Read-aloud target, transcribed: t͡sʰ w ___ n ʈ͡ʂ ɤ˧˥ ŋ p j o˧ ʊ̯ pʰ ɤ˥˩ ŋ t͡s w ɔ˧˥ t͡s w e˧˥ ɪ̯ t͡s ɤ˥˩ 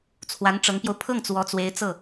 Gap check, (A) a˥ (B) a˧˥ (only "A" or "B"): B